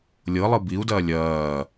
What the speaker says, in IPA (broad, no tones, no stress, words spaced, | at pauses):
lʲɤ lˠɯbiu̯dɐː lʲɐː